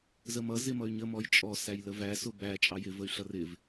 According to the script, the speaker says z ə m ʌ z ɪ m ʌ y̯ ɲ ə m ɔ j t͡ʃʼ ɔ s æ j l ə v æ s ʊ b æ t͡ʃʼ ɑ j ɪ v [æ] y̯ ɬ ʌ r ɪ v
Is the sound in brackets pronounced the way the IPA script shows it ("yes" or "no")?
no